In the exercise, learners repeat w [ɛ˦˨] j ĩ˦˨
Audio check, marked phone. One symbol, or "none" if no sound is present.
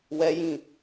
ɛ˦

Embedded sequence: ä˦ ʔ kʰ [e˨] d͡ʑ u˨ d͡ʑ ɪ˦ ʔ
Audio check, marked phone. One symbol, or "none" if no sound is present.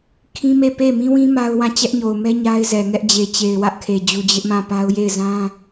e˨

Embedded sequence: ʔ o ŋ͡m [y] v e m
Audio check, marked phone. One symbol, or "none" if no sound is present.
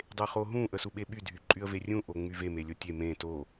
y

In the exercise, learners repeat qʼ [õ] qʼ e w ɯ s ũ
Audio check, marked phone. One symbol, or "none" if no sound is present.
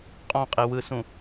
ɔ̃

